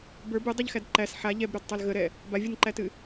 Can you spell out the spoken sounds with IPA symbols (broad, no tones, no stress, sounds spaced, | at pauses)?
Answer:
b ə˞ b ɨ dˤ ɨ ʎ x æ d ǃ æ s ħ a ʎ ɛ b ɾ ə˞ d tˤ a l ɣ ə ɾ ɛ | b a vʲ u n ǃ æ t ɨ